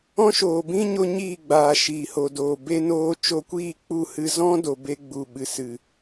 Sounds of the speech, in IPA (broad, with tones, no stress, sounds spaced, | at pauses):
ɔ̃˦ ʃ oː˨ b ĩ˦ ɲ o˧ ɲ iː˦˨ ɡ͡b aː˨ ʃ iː˨ h o˨ d oː˨ b e˧ n oː˧ t͡ʃ o˧ kʷ iː˦˨ k͡p u˦˨ h ɨ˧ z ɔ̃˦ d o˨ b e˧ ɡ͡b u˨ ɓ ɨ˨ s ɨ˨